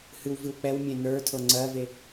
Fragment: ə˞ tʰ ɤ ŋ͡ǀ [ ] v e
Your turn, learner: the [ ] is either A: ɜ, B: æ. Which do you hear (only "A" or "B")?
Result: A